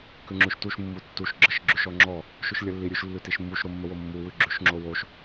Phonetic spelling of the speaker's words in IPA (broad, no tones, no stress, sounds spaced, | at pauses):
k ʉ ŋ͡ǁ ʉ ʃ t u ʃ mː u tː u ʃ ɡ͡ǁ ə ʃ ɡ͡ǁ ʉ ʃ ɔ ŋ͡ǁ ɔ | ʃ ʉ ʃ lʲ ə lː i ɾʲ ʉ ʃ lː ʉ t i ʃ mː u ʃ ɾ o mː ə w o mː u w ʉ ɡ͡ǁ ʉ ʃ ŋ͡ǁ o w o ʃ